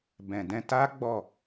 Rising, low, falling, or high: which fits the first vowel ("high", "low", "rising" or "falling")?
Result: low